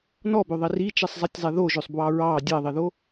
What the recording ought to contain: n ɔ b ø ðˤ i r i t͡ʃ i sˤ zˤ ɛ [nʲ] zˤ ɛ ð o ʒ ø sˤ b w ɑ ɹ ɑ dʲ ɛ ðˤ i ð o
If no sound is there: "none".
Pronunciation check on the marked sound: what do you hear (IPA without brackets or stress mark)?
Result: tʲ